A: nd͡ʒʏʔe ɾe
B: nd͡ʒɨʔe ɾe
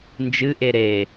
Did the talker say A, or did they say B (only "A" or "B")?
B